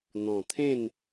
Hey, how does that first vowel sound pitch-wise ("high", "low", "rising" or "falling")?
low